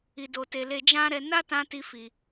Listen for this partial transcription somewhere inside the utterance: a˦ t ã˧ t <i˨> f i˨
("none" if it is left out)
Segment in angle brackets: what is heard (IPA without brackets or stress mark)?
i˧